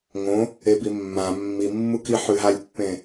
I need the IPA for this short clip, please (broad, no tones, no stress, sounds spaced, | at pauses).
ŋ õ | e b i mː ã mː i mː u k i ħ ʉ ɦ a lʲ pː ẽ